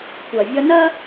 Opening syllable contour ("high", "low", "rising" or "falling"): low